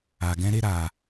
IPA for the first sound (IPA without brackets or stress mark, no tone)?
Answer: a